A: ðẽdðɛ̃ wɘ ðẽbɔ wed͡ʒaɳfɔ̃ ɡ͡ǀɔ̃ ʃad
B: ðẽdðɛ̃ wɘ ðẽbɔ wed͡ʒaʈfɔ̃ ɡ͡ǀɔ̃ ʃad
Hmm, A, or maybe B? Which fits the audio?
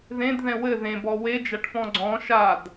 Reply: B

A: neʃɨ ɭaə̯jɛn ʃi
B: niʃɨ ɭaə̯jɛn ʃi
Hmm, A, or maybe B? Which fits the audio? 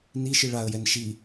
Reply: B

